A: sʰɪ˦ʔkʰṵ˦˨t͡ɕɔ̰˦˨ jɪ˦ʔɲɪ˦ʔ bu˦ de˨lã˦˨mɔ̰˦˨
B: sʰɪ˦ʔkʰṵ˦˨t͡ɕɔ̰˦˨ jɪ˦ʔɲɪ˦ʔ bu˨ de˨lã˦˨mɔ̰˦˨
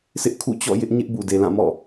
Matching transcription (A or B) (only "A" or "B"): B